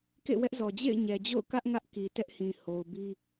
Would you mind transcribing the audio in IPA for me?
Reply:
k ḛ˦˨ w ɛ˦ ʔ z ɔ˨ d͡ʑ ḛ˦˨ ɪ̯ ɲ ɛ˨ d͡ʑ o̰˦˨ ʊ̯ k ä˦ ʔ ŋ ä˦ ʔ k i˨ t ɛ˦ ʔ h ĩ˨ h o˨ ʊ̯ b i˦

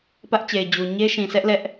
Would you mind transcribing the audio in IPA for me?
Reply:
p ä˦ ʔ t͡ɕ e˨ ɪ̯ d͡ʑ u˨ ɲ e˦ ʃ ĩ˨ s ɛ˦ ʔ l ɛ˦ ʔ

